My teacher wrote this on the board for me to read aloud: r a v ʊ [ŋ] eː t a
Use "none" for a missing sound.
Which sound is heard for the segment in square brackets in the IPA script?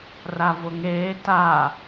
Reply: ŋ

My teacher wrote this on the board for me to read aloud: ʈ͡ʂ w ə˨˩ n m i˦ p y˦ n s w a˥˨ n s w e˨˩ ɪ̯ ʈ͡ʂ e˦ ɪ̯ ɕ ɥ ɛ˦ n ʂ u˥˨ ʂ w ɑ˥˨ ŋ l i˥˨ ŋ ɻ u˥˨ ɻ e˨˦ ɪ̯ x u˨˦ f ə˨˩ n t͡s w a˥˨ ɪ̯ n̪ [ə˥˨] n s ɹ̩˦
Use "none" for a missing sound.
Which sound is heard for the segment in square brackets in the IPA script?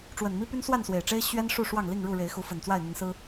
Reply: ə˨˦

